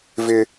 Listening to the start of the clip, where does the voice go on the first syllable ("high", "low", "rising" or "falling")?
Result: high